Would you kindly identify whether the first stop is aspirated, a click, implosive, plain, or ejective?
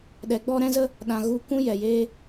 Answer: implosive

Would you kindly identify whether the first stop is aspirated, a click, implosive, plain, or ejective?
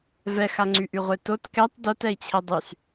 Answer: click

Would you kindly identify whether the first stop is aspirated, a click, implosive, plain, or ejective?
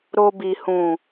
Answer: plain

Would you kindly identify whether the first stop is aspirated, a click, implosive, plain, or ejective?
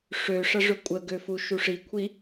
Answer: ejective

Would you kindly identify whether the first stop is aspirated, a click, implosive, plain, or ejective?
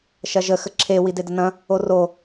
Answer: click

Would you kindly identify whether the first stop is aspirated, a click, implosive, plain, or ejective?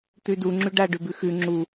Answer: plain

